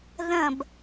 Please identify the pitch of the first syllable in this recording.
falling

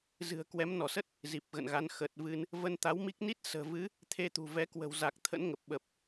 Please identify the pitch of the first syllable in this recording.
low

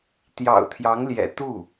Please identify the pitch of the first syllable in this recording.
low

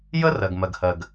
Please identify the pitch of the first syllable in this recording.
high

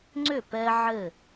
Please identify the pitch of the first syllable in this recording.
falling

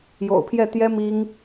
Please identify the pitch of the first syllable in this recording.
low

